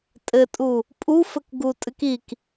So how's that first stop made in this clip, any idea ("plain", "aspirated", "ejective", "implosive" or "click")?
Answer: ejective